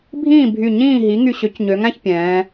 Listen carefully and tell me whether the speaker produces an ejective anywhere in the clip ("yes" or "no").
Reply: no